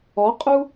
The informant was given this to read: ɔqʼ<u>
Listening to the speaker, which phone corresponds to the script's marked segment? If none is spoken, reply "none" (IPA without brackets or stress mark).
u